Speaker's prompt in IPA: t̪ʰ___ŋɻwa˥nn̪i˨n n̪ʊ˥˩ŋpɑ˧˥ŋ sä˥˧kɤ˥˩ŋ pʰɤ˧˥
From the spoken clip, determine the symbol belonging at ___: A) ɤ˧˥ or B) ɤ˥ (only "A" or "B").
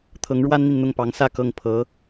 A